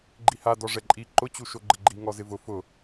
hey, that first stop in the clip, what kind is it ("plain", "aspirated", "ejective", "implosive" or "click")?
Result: click